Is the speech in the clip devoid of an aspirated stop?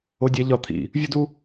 no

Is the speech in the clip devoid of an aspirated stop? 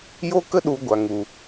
yes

